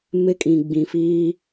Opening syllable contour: high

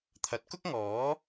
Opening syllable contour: rising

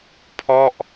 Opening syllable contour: falling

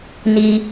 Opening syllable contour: low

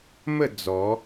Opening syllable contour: falling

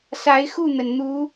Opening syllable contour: rising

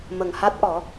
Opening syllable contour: low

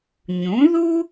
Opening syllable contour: rising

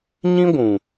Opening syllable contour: high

